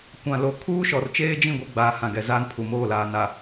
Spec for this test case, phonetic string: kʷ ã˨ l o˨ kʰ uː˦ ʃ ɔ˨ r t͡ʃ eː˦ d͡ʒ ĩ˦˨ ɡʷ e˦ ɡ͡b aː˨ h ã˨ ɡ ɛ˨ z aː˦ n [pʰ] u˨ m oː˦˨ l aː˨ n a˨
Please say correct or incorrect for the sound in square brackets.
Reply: correct